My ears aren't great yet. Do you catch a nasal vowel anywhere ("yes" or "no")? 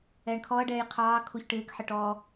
no